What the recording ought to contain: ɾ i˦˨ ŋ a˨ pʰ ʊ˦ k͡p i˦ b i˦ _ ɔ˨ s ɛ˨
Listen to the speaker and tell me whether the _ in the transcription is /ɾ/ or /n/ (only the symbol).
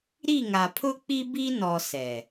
n